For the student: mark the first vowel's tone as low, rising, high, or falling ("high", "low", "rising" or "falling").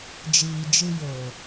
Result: low